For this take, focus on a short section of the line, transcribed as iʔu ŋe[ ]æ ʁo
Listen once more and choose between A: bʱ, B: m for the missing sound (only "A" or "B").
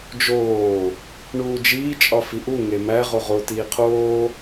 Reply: B